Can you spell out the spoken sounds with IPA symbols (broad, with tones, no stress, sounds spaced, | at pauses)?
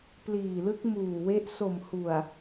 p l iː˨˩ l ɯ˦˥ k̚ m uː˨˩ w e˦˥ ʔ s o˨˩ m h u˨˩ a̯